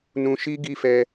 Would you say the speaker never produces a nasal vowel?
no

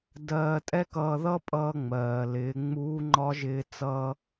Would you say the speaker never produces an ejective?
no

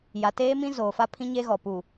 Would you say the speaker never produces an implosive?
yes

